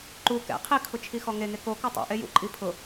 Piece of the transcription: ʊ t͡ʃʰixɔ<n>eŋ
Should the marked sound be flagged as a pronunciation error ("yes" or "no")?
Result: yes